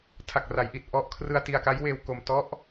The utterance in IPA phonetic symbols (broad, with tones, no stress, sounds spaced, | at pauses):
tʰ a˨˩ k̚ r a˩˦ j ʔ i˨˩ t̚ ʔ ɔ˦˥ ʔ kʰ r ɯ˧ a̯ t i˧ a̯ k a˦˥ j w eː˧ w k o˧ m t ɔ˦˥ ʔ